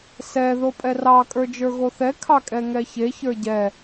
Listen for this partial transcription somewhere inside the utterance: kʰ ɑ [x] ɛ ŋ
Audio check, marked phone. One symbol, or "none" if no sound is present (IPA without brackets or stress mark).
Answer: kʼ